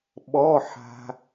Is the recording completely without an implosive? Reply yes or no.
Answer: no